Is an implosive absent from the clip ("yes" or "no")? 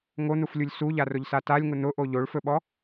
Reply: no